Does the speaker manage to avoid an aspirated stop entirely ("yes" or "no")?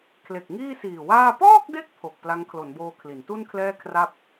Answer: no